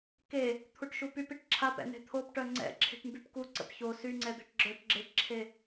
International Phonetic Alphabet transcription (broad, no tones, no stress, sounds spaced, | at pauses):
k e | t̪ʰ u ʈ ʃ u p y p i ʈ ǁʰ a p ɛ̰ n̪ e̤ t̪ʰ o p ʈ œ ŋ͡ǀ ɛ̰ ǁʰ e̤ ʈ m b y p k u ǀ ə̰ p ç o s y ŋ͡ǀ ɛ d̪ e̤ ʈ ɡ͡ǁ œ ʈ ɡ͡ǁ e ʈ ǁʰ e